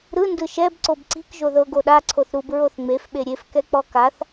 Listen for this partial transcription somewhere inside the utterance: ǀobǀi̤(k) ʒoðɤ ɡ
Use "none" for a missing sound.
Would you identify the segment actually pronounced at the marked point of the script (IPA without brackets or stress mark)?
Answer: k